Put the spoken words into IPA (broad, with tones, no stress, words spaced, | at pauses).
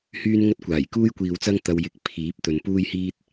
hyː˥nŋɐ˥t̚kʷaː˨˩j kuː˥jkʷiː˨wt͡sɐ˥ŋ t̪ɐ˧wjɪ˧k̚ pʰiː˨˥p̚t̪ɵ˨n puː˥jhiː˥t̚